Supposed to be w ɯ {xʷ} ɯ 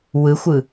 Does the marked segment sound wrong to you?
no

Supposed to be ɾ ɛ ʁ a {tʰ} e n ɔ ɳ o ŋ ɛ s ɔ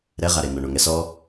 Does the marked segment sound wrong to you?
yes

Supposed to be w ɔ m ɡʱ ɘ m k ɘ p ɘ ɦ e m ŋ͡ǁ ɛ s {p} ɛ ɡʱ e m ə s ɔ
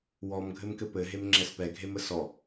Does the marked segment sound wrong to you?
no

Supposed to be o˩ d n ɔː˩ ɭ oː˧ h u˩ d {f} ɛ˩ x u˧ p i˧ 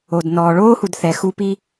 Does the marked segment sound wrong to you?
yes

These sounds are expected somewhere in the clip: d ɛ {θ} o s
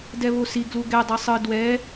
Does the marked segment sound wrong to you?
yes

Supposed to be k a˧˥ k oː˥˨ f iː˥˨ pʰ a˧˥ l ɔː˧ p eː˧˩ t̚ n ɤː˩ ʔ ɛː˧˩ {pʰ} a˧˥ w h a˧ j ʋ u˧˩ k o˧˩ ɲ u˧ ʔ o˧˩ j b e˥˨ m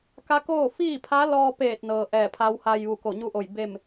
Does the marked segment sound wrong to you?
no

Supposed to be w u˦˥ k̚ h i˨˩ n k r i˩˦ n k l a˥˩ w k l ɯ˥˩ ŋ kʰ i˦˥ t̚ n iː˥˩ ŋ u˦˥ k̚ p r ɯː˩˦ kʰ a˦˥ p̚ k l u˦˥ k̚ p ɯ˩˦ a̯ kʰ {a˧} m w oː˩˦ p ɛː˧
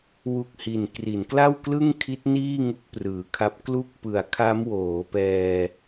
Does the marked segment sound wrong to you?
yes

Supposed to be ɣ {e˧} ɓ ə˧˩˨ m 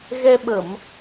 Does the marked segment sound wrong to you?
yes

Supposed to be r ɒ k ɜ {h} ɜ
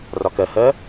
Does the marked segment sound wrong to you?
no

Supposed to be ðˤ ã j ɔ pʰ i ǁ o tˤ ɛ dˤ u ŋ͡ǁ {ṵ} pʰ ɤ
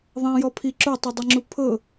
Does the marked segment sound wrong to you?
yes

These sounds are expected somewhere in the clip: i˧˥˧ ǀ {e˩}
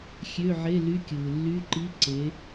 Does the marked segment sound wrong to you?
yes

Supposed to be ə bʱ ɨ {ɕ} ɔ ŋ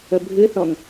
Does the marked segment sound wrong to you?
yes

